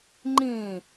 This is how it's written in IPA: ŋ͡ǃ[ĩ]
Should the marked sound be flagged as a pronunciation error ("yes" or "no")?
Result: yes